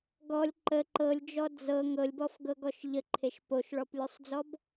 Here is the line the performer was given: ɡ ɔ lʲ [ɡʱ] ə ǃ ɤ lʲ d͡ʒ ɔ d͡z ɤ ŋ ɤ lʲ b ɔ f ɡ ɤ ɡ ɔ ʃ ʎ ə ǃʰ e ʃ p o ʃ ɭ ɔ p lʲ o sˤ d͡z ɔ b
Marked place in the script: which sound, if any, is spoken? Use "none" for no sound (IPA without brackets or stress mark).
ǃ